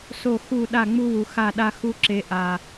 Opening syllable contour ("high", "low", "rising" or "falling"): falling